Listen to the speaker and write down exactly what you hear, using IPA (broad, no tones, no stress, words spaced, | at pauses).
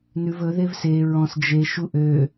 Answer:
nʉv ɵ ðevse ɹɔ̃s d͡ʒe ʃuʔø